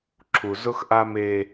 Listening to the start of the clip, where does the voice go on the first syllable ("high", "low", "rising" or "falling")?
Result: low